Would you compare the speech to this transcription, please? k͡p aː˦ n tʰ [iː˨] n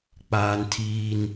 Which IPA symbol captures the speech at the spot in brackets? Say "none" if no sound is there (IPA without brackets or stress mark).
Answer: iː˦